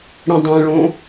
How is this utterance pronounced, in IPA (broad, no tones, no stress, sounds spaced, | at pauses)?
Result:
ɽ ĩ dˤ ɛ̃ ɭ õ